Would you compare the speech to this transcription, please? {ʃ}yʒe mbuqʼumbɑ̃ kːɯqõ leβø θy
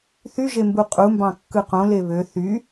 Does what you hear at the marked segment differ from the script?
yes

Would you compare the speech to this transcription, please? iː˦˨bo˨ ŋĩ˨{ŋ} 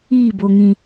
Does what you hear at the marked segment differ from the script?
yes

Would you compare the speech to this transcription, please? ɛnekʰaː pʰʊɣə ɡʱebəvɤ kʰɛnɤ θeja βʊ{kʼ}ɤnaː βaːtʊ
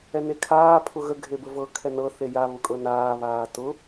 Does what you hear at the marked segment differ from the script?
no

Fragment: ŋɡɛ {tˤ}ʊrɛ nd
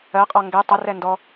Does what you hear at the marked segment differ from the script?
no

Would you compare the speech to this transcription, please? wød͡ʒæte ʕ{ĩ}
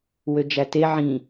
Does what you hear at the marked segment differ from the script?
no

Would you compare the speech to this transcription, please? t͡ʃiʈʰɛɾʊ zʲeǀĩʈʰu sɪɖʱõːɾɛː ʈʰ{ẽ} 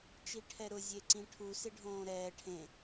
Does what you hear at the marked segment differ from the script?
no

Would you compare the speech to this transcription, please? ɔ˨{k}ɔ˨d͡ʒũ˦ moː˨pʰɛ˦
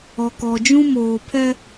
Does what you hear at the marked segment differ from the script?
no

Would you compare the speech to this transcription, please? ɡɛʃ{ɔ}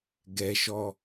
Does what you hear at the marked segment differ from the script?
no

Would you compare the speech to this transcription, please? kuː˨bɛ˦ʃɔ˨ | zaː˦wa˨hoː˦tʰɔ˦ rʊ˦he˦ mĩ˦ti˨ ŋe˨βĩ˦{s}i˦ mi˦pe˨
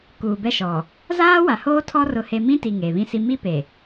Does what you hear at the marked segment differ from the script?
no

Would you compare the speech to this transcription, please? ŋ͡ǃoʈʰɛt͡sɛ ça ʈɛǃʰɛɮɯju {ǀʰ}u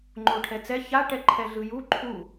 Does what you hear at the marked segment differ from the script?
yes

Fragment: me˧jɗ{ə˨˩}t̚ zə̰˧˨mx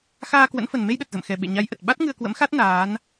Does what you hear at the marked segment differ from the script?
no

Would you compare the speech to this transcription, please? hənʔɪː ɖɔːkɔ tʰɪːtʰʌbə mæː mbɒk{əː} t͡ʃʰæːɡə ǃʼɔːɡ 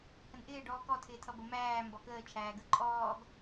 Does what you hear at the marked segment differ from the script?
no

